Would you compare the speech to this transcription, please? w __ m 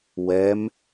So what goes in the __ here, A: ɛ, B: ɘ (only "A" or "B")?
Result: A